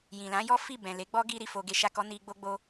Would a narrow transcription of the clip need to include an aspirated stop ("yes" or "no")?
no